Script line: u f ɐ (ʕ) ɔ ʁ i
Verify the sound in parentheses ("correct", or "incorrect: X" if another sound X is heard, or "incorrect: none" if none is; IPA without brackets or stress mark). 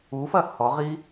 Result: incorrect: h